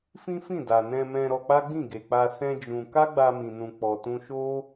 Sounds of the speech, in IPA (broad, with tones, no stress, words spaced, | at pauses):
fĩ˦fĩ˦˨da˨ nɛ̃˧mɛ̃˧ ɾɔ˧k͡pa˦ɡ͡bĩ˦˨ ɡe˨k͡pa˧ sɛ̃˦d͡ʒũ˧ ka˦ɡ͡ba˧mĩ˨nũ˨ k͡pɔ˨tũ˧ʃo˦